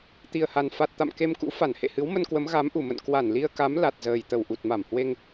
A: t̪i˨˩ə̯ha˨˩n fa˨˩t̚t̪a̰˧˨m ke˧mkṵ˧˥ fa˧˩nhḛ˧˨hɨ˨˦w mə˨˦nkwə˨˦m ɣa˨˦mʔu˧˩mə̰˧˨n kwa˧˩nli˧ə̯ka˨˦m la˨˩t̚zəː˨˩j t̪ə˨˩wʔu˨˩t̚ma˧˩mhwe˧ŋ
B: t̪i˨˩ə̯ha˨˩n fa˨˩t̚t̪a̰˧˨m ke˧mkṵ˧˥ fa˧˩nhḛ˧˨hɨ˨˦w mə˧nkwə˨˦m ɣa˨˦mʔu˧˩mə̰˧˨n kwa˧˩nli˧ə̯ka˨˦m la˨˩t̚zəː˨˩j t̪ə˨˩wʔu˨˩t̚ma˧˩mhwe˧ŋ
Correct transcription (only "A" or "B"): B